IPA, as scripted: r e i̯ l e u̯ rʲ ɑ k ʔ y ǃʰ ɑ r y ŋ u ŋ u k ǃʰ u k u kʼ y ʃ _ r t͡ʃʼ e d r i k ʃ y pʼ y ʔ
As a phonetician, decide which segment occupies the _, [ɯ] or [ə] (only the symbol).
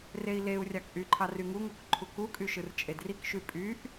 ɯ